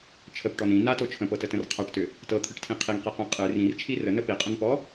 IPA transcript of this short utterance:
t͡ʃʰəpʈɔn ĩ nato t͡ʃʰə̃pɤtətə̃r qʰaʈtʏ | tɤt̪ʰɨʈtʰĩ qʰiŋqiqɛ̃ qʼɨ rĩrt͡ʃʰi rənə piqʼə̃npɔ

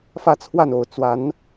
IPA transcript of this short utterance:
fä˥˧t͡sʰwa˥˩no˨˩ʊ̯ t͡swa˧˥n

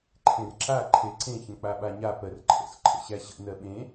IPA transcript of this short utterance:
ǃʰẽrǁa ǃʰeǀẽçə̃ k͡paɓaɲa pɜrǃʰə̰sǃʰə̰ ɕæɕə̰ nɜɓẽ

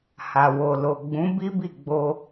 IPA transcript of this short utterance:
ha˨wo˨lo˨ ɡ͡bũ˨˦bi˦bi˦˨ɡ͡bo˧

